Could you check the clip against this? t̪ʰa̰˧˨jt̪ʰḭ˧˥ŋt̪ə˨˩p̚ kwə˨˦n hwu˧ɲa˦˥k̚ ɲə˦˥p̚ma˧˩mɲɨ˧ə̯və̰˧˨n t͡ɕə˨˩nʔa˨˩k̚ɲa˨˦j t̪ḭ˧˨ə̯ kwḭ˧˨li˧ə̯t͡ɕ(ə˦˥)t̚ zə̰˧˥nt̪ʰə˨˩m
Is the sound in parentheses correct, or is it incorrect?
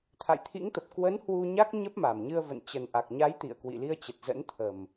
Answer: incorrect